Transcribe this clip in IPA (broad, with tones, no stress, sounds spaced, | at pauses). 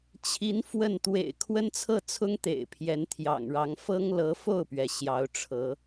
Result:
t͡ɕʰ i˧˥ n f w ə˥˩ n t̪ w ḛ˨˩ ɪ̯ kʰ w ə˥ n t͡sʰ ɤ˥˩ t͡sʰ ʊ˥ ŋ t̪ ḛ˨˩ ɪ̯ pʰ j ɛ˧˥ n t̪ʰ j ɑ̰˨˩ ŋ ɻ ɑ˧˥ ŋ f ɤ˥ ŋ l ɤ˧˥ f o˥˩ ʊ̯ p ɥ ɛ˩ ɕ j ɑ˧˥ ʊ̯ ʈ͡ʂʰ ɤ˧˥